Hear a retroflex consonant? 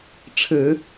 yes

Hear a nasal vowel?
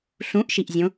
yes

